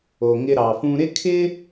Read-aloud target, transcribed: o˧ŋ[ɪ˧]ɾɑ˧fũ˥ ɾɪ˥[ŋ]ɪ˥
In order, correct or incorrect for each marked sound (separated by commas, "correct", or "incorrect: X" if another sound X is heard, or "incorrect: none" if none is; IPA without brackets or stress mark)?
incorrect: ɪ˥, incorrect: kʰ